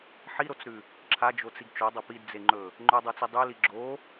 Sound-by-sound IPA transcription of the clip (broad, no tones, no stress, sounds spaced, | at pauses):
ħ i ɾ o t͡s ɾ ʉ | ǁʰ a d͡ʒ o t͡s i ɡ t͡ʃ o dˤ ɐ p i d d͡z e ŋ͡ǃ ɵ | ŋ͡ǃ ɵ dˤ u t͡s i dˤ ʉ l i ɡ͡ǁ o